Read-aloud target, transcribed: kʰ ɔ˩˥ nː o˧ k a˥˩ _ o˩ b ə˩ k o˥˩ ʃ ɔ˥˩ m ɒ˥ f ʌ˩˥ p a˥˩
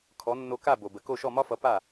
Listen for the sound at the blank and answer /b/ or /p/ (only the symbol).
b